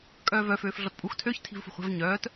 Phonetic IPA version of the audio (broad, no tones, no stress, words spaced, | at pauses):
kʼœːvœ føːfɮɔtpʼux tʰøç tʰi̤vfṳχʷɛ̤v ɲœːt